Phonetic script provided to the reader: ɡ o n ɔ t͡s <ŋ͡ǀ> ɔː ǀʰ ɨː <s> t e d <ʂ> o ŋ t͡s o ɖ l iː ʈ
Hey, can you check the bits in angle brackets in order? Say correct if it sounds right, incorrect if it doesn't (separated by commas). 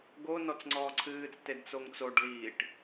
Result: correct, incorrect, incorrect